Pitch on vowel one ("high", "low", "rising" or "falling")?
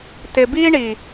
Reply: low